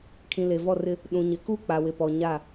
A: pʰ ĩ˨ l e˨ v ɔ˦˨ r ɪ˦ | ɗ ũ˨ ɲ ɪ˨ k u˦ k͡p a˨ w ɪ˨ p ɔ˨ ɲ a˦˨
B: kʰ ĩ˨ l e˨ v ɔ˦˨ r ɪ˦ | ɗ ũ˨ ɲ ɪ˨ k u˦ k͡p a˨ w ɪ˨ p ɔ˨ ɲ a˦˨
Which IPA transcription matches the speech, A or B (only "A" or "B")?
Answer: B